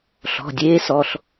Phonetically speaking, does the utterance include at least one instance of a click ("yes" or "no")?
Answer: no